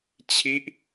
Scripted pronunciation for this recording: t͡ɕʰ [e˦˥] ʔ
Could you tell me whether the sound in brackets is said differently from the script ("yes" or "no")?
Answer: yes